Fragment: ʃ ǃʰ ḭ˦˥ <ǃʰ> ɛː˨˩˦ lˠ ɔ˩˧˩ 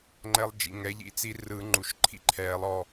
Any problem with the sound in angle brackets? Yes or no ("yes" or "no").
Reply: no